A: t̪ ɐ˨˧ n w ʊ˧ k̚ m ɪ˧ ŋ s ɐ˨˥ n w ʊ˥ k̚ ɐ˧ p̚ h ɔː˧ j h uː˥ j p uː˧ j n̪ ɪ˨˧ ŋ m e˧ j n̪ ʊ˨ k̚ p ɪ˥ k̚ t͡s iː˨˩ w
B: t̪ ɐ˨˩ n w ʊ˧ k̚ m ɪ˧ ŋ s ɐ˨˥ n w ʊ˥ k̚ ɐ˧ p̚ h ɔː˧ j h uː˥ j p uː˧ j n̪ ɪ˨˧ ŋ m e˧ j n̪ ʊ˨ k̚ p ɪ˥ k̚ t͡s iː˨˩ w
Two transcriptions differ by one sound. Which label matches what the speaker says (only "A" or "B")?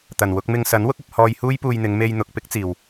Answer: B